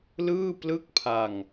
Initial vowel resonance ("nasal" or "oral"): oral